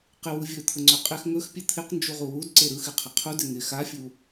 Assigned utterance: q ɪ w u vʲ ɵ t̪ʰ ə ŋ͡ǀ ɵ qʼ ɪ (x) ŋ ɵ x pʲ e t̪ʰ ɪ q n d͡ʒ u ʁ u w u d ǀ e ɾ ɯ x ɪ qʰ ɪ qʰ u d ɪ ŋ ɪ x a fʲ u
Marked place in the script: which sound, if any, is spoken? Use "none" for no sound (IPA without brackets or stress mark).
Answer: x